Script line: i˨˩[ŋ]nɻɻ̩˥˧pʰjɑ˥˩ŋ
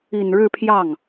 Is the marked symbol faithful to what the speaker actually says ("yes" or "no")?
no